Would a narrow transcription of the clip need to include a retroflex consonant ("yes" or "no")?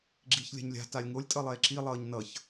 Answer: no